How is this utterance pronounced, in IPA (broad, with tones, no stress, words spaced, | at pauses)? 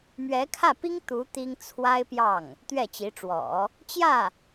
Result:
mɥɛ˧˥kʰä˥˩pi˥ŋ t̪u˧˥ t̪i˥ŋ t͡sʰwa˥ɪ̯pjɑ˥˩ŋ | t̪ɥɛ˥˩t͡ɕi˧˥ʈ͡ʂwɔ̰˨˩˦ | t͡ɕjä˥˩